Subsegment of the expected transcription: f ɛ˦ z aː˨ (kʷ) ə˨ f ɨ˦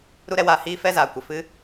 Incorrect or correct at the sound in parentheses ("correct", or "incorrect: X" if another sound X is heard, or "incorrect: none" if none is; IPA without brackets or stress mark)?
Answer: correct